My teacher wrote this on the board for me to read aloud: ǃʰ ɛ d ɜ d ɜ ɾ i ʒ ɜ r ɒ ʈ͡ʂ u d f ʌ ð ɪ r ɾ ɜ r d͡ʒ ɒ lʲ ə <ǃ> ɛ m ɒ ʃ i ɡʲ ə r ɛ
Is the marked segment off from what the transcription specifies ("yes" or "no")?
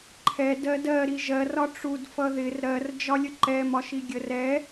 no